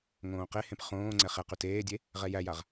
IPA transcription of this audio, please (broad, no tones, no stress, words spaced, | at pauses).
ŋõːqehẽp χõːŋ͡ǀɛ χɛqy teːdʲe | ʁɛjæjaʁ